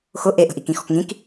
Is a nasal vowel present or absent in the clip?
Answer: present